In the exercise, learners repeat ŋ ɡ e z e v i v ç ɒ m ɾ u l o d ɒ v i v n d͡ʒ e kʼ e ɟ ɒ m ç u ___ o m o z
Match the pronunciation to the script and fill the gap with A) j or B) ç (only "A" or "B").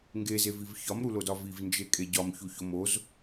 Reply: B